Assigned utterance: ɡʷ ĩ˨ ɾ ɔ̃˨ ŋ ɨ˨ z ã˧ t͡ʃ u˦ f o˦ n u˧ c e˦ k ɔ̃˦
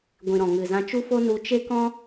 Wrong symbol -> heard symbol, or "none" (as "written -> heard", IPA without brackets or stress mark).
c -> t͡ʃ